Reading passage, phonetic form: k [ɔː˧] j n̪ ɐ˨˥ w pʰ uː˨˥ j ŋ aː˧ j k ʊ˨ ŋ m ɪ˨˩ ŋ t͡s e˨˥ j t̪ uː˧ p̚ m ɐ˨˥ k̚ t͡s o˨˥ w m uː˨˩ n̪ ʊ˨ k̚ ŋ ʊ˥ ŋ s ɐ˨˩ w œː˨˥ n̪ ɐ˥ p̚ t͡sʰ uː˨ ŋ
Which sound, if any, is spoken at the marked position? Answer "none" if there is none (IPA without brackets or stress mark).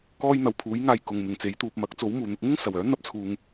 ɔː˥